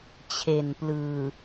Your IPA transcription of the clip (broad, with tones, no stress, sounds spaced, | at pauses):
t͡ɕʰ e˨˩ n p l ɯː˨˩